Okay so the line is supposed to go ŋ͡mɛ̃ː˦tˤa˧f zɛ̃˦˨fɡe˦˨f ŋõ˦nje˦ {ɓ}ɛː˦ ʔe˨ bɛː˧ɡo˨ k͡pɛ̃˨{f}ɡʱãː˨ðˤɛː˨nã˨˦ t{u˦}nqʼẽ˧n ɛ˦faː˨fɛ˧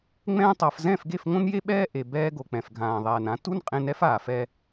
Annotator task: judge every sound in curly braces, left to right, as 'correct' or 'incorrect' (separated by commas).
correct, correct, correct